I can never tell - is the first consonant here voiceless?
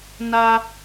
no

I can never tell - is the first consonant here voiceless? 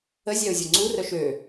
no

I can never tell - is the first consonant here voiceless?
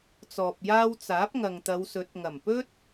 yes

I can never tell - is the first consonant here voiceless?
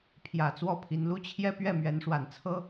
yes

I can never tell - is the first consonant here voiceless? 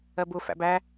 no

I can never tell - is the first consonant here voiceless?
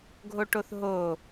no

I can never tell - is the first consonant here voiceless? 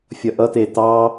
yes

